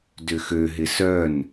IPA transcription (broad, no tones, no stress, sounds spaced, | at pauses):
d ʏ x ø ɦ ɪ s œ n